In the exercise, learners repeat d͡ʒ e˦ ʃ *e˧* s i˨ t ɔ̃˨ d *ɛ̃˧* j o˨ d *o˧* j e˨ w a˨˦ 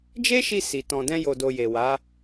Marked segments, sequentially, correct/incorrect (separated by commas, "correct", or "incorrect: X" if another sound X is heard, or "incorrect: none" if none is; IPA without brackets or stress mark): incorrect: i˧, correct, incorrect: o˨